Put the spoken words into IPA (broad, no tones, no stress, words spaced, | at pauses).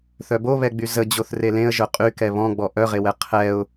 θœboβɛɡ͡by zə d͡ʑoθrelẽə̯ ʒœqʼy kɛβɔ̃ɡ͡bɔ ʔœʁewɛ qʰɛʊ̯